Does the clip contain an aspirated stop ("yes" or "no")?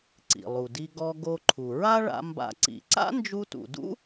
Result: yes